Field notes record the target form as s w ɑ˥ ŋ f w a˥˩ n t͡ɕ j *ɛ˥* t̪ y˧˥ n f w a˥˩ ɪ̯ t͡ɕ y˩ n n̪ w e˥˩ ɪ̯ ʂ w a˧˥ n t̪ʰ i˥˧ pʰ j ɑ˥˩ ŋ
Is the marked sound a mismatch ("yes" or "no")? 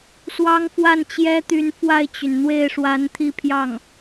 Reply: no